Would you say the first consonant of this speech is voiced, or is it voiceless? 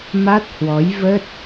voiced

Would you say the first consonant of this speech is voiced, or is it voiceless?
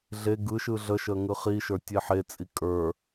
voiced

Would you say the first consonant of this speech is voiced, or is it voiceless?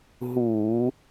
voiced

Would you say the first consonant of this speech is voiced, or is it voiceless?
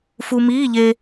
voiceless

